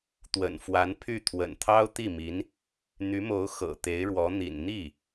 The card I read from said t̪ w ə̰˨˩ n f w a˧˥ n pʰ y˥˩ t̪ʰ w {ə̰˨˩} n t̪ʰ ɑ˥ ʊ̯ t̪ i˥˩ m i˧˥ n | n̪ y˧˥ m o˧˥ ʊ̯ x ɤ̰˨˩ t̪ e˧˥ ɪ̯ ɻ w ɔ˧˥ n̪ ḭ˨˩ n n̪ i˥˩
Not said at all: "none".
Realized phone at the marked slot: ə̰˨˩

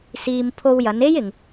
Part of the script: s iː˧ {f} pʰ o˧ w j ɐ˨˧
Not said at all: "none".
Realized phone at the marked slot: m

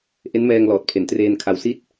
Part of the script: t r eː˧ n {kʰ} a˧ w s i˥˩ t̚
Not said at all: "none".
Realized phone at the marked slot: kʰ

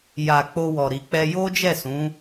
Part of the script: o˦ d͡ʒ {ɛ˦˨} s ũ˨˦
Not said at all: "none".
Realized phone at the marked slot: ɛ˦˨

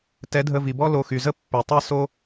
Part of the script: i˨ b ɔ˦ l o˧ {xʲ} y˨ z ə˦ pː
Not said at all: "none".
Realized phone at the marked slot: x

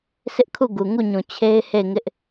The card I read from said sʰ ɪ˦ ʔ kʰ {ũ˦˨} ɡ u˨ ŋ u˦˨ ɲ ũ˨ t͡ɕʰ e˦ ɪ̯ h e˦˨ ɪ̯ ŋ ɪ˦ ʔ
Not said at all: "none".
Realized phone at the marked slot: u˦˨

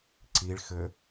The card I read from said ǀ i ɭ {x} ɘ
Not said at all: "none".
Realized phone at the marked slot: x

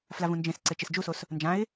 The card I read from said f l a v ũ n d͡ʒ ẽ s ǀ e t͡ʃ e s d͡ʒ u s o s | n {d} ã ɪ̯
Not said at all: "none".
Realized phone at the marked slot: d͡ʒ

